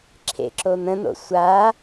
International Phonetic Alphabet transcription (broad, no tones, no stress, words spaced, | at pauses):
ǁʰḛǁo n̪ə̃n̪o̰ sʷa